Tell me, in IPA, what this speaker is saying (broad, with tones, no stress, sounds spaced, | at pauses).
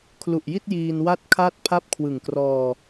kʰ l u˨˩ ʔ j i˥˩ t̚ j iː˧ n w a˥˩ t̚ kʰ a˥˩ t̚ pʰ a˥˩ p̚ kʰ w ɯ˨˩ ŋ k r ɔː˧